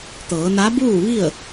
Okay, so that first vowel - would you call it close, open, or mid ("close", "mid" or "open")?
mid